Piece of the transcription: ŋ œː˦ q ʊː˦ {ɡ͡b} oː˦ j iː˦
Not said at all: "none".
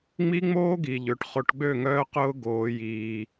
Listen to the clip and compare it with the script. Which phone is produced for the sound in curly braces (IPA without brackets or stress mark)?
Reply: ɡ